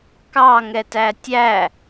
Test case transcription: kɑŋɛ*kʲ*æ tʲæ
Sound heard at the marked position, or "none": t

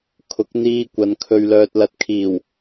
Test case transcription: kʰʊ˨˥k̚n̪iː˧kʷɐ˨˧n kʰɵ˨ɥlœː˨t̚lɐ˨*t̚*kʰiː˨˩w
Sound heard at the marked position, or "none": t̚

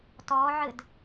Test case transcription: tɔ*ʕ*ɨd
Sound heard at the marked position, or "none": ʕ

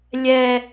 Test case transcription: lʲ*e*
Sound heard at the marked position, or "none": ɛ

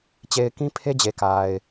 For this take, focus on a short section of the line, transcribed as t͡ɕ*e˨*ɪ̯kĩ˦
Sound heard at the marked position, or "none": e˨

